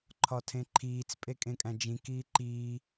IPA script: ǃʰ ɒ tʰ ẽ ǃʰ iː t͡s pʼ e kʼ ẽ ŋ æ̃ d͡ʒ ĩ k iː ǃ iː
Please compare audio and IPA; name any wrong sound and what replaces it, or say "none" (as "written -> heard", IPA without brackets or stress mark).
ŋ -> kʼ